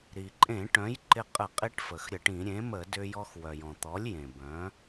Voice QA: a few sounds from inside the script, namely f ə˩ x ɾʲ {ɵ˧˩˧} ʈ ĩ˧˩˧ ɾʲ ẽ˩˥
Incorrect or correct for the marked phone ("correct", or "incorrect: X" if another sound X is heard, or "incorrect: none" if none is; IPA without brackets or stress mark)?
incorrect: ə˧˩˧